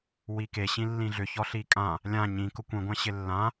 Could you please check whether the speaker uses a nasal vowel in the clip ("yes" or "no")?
yes